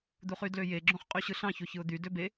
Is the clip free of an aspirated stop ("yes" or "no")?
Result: yes